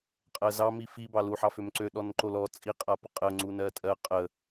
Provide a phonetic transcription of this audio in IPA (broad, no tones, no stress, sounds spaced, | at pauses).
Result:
qʼ ɜ z ɑ m i f i b ɑ l u ħ ɑ f ø m ǀ ø ɗ ɔ n ǃ o l ɔ t͡sʼ i qʼ a p ə qʼ ə ŋ͡ǀ u n ɜ tʼ ɜ qʼ ə